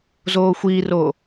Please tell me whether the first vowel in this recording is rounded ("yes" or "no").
yes